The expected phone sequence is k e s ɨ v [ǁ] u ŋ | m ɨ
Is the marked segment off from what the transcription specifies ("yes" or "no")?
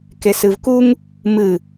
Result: yes